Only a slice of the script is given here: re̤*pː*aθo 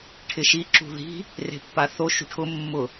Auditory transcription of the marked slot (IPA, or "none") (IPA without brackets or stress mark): pː